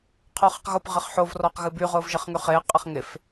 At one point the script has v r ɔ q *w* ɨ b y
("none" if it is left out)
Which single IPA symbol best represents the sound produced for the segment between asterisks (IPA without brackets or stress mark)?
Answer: ɣ